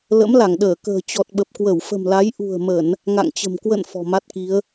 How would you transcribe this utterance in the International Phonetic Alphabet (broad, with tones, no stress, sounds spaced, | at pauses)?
l ə̰˧˥ m l a˧˩ ŋ ɗ əː˧˩ k ə̤ː˨˩ t͡ɕ ɔ˨˩ t̚ ɓ ə˨˩ p̚ k w ə˧˩ w f ə̤˨˩ m l a˨˦ j ʔ ṳ˨˩ ə̯ m ə˧˩˨ n | ŋ a̰˧˨ ŋ t͡ɕ ə̤˨˩ m k w ə̰˧˨ n f ɔ̤˨˩ m a˦˥ t̚ k i˨˦ ə̯